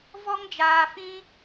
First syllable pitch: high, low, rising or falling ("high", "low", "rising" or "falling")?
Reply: high